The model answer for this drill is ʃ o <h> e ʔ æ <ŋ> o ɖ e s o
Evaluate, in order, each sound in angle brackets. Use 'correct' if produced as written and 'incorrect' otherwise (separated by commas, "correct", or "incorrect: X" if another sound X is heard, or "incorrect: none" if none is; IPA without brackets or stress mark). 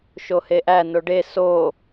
correct, incorrect: n